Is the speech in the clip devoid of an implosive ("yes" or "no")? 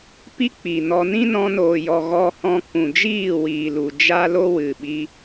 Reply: no